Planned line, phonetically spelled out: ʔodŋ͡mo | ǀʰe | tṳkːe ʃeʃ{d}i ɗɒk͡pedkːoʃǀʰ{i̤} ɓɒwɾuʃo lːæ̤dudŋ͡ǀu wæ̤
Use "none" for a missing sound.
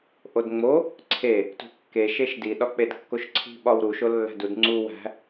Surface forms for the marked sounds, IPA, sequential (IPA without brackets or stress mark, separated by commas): d, i̤